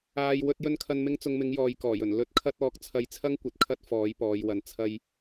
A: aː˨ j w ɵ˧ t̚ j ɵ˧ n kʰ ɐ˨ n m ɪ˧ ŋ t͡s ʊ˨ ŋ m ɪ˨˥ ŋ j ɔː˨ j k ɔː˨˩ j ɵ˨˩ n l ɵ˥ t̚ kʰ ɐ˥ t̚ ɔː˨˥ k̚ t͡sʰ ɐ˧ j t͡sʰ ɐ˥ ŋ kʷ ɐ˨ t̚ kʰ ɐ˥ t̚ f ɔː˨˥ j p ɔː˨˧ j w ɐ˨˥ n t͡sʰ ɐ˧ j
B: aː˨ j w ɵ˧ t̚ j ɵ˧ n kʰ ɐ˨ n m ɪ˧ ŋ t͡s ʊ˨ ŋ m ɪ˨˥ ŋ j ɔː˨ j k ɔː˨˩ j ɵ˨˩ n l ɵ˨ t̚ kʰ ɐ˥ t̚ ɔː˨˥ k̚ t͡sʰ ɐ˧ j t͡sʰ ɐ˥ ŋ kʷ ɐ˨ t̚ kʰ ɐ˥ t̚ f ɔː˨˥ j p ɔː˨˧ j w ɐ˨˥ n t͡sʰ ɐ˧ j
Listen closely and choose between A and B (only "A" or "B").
A